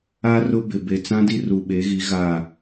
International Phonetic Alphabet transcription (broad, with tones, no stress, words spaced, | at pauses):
a˦rʊ˦ bɪ˨ be˨t͡sã˦di˦ ru˨ɓe˨˦ɣi˨˦ ɣa˦˨